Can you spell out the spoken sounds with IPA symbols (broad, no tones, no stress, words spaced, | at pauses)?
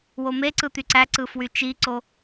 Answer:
womeǀɯ t̪yǀæǀɯ fwyt͡ʃiǀo